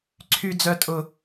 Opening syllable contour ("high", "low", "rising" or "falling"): high